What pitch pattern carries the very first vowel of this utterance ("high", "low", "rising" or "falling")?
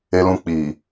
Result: high